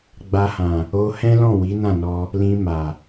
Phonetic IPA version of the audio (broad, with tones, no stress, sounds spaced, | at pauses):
ɡ͡b a˧ h ã˨ | o˧ h ɛ̃˦ l ɔ̃˦˨ w i˨˦ n ã˦˨ n ɔ˧ | l ĩ˧ m a˨